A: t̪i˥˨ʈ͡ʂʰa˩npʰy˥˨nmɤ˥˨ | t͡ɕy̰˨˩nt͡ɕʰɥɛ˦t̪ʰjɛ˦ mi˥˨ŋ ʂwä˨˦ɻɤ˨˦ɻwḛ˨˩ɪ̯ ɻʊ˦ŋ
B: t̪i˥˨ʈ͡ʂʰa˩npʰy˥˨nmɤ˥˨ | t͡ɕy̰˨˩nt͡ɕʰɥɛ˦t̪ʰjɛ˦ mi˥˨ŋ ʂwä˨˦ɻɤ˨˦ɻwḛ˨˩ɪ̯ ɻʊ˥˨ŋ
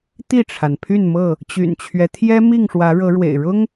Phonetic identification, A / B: A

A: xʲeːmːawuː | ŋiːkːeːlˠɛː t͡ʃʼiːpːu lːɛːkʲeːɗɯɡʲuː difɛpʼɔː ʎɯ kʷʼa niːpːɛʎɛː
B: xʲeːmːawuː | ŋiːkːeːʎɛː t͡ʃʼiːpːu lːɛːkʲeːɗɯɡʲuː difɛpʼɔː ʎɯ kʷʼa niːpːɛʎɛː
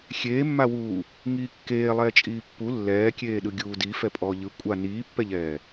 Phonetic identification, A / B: A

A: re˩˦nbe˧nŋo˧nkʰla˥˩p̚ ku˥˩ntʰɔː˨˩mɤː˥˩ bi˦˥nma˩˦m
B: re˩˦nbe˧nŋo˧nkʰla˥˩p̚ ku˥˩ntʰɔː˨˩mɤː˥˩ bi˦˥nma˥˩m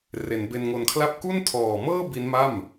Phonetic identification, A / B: B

